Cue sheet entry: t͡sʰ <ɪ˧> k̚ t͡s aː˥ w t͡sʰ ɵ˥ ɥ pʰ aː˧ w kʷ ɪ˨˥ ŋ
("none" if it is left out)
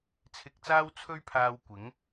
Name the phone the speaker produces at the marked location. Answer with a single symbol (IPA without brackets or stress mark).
ɪ˧